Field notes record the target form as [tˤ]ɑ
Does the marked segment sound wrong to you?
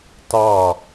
yes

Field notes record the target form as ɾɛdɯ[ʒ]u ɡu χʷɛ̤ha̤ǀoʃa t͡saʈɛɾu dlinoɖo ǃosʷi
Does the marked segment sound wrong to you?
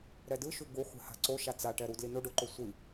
yes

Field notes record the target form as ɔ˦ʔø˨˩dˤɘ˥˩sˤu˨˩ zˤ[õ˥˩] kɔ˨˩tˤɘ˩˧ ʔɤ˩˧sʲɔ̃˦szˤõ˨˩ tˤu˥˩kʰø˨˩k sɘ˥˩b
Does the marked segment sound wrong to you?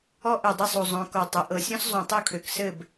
yes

